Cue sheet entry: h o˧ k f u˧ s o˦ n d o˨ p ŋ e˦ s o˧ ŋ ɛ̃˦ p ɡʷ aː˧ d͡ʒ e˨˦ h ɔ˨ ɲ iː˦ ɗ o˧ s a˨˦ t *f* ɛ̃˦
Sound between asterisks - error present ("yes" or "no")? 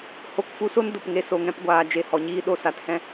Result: yes